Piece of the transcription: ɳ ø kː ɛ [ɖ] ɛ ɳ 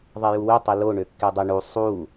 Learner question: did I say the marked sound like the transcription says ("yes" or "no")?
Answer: no